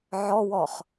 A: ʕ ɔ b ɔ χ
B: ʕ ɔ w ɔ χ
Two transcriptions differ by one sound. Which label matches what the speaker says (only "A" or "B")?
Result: B